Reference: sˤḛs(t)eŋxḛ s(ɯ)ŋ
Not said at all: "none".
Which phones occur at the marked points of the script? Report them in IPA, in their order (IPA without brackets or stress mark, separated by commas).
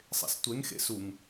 tʷ, u